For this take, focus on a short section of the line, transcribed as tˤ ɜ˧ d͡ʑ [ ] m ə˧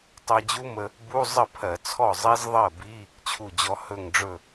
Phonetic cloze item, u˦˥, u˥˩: u˦˥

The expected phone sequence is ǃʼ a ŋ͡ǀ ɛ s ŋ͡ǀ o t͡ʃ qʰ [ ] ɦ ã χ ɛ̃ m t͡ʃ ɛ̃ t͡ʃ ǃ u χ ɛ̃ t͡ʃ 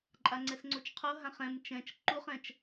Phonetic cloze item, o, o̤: o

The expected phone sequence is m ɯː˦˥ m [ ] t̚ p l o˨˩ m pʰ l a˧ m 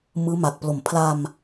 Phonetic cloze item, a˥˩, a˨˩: a˨˩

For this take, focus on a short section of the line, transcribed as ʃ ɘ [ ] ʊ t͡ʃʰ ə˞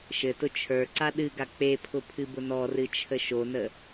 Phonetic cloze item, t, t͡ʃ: t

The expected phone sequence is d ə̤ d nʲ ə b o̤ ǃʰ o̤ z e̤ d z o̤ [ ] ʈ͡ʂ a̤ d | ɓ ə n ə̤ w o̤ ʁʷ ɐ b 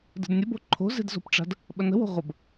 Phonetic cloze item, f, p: p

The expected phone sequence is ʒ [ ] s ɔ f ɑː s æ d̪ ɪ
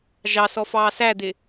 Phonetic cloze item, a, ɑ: ɑ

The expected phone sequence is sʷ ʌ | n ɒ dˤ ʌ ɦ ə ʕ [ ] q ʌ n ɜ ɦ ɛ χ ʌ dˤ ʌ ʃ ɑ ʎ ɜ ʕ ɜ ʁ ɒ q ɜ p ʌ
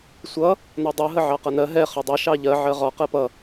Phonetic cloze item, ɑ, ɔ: ɑ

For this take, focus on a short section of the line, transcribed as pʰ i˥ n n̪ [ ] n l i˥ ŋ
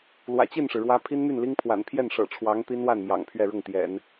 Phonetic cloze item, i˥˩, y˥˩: y˥˩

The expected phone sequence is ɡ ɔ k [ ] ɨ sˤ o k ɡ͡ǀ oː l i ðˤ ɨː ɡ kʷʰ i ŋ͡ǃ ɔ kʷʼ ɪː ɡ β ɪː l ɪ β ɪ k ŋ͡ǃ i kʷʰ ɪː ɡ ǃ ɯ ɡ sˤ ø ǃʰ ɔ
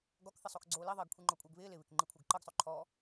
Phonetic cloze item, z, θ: θ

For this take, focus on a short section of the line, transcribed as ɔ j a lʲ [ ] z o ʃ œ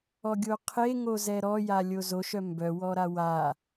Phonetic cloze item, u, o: o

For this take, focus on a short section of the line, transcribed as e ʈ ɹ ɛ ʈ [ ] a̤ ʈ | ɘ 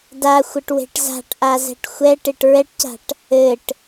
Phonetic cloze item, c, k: c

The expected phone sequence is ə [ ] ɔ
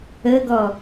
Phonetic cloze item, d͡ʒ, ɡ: ɡ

